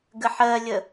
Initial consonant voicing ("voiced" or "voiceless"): voiced